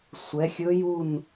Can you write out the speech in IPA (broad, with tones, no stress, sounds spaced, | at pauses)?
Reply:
sʷ ɛ˨˦ xʲ ɵ˦˥ j u˥˧ n